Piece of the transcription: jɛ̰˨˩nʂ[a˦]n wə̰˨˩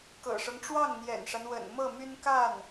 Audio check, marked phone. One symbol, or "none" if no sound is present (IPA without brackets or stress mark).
a˦